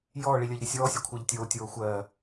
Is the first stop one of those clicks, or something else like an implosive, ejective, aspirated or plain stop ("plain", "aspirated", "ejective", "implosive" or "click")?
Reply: aspirated